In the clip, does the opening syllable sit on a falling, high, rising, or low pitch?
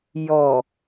low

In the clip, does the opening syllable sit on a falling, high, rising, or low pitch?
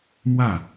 falling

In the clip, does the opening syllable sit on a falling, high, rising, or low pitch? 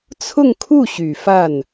falling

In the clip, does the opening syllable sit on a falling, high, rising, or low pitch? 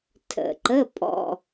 low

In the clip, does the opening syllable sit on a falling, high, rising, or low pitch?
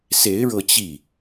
rising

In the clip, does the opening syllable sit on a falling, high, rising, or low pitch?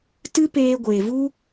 high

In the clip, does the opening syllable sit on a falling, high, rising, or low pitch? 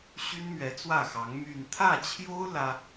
high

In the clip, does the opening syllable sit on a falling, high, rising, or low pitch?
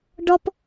high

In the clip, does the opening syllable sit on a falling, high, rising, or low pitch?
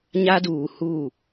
high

